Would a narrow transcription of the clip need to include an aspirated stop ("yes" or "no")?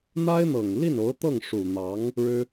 no